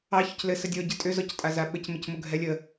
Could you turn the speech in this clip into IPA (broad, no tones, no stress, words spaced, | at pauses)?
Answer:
ɑ çʏclɘ sədʲɔ ɟɘtʼʏ zɔctʼazaɓɘc mɘcmʊɡʱɛlʲə